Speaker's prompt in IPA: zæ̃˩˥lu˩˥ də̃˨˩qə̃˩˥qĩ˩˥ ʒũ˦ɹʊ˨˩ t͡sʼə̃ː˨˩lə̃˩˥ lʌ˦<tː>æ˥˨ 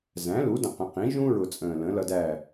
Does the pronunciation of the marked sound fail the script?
yes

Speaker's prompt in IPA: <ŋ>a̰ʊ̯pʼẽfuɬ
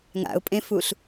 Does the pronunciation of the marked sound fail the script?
no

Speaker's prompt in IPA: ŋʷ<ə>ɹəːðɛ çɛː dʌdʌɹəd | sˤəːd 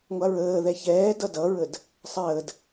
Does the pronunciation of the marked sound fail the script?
yes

